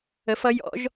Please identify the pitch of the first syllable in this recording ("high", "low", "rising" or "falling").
rising